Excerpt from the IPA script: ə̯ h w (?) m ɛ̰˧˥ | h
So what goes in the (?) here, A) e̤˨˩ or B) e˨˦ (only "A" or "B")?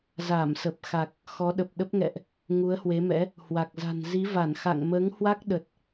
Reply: B